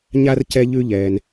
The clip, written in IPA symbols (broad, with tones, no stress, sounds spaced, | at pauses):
ɲ a˥ r c ɛ˦ ʎ ʉ˦ ʎ ɛː˩ n